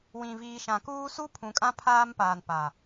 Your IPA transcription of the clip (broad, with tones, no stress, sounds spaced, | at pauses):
w ĩ˨ v iː˨ ʃ ã˨ k uː˦ s u˦ pʰ ũ˨ kʼ ã˦ pʰ aː˦ m p aː˨ n p a˨